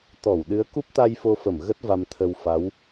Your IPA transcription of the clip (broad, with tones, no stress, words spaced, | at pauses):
t̪ɔ˧˩w ɗɨ˨˦ə̯ku˦˥p̚t̪a˧j fo˧fə˧˩m ɣə˦˥t̚ va˧mt̪ʰə˧w fa˨˦w